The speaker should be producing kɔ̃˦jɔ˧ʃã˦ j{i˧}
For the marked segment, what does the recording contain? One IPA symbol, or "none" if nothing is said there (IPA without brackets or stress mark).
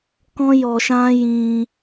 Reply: ĩ˧